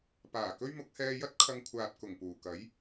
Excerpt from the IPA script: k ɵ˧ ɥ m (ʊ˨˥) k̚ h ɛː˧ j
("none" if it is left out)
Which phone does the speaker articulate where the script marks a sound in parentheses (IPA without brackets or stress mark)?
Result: ʊ˨˥